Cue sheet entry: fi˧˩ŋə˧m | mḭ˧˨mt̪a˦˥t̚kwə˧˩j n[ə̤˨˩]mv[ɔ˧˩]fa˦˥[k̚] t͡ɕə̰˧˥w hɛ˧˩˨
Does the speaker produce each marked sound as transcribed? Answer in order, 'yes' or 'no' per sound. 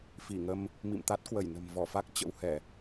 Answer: yes, yes, yes

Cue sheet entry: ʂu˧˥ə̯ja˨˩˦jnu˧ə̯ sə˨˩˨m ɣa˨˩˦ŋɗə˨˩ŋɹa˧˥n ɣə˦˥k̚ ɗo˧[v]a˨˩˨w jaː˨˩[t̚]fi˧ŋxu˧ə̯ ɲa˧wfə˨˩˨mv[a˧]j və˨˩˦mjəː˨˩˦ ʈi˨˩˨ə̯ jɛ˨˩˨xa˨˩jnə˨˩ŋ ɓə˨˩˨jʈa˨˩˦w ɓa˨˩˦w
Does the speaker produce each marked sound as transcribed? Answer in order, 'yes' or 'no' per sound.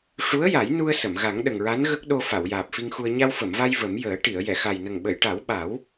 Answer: no, no, yes

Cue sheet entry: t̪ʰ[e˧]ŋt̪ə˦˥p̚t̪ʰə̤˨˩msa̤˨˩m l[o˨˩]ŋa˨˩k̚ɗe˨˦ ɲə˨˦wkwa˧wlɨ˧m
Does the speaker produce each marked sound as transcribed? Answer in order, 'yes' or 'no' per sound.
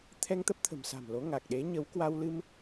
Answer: no, no

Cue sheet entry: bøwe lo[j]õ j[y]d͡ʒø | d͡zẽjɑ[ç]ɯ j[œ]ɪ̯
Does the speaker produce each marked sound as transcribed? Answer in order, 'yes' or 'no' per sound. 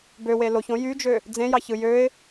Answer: no, yes, yes, no

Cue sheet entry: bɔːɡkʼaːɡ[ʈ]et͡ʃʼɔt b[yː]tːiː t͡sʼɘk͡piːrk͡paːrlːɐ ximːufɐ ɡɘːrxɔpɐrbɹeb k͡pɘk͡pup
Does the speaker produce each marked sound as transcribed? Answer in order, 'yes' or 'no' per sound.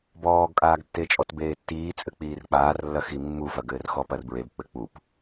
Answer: no, no

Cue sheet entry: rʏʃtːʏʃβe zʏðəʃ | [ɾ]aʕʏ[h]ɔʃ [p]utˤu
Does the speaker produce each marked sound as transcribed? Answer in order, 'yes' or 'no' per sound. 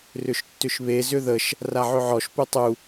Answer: no, no, yes

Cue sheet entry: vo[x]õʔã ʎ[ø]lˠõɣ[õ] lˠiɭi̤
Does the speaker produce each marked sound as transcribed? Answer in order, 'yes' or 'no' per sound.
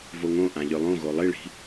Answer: no, yes, no

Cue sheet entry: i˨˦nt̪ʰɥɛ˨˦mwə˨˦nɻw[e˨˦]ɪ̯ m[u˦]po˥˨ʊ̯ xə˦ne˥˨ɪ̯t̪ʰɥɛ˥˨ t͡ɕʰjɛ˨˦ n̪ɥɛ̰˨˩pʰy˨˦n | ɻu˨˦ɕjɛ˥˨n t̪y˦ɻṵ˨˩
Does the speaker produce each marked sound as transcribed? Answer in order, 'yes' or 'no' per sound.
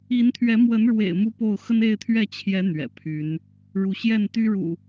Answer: no, yes

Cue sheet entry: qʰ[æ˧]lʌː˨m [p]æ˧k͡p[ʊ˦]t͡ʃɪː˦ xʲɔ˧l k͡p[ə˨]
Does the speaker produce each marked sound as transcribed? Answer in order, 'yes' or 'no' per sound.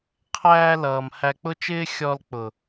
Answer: no, no, yes, no

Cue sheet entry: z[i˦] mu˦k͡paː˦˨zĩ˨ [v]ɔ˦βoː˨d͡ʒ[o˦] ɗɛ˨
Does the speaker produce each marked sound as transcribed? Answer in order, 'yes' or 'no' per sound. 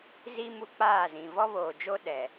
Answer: yes, yes, yes

